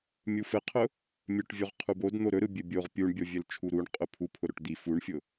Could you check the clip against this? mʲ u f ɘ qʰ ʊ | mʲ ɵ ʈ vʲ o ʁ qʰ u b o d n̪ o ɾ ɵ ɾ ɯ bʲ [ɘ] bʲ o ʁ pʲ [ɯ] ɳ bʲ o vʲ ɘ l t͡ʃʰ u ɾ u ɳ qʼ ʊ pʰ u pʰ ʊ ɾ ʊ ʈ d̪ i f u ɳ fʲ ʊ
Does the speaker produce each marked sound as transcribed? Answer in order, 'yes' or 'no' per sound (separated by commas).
yes, no